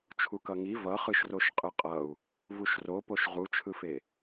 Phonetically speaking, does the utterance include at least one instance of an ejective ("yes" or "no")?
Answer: yes